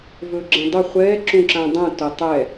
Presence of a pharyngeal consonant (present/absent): absent